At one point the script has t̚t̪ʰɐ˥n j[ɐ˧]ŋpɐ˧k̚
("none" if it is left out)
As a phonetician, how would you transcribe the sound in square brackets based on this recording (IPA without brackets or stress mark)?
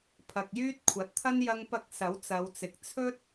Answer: ɐ˧